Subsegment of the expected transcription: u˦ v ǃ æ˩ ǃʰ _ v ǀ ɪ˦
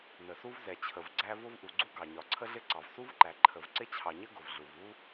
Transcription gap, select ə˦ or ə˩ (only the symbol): ə˩